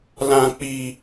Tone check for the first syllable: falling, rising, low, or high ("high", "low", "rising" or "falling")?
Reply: low